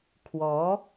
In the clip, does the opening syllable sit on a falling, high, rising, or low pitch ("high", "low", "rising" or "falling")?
rising